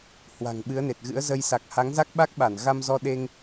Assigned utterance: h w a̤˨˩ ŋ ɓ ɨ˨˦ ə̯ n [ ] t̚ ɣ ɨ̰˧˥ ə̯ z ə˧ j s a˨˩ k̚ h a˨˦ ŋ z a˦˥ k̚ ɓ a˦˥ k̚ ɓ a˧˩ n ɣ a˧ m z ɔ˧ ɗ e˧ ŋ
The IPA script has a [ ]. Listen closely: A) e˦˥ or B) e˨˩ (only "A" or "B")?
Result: B